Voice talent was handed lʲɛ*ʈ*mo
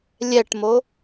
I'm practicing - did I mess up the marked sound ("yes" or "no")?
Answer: no